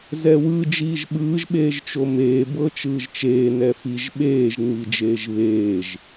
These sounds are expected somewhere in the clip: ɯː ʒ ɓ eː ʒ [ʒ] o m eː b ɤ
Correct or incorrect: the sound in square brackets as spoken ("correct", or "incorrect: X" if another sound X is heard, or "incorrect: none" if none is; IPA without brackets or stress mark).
incorrect: t͡ʃ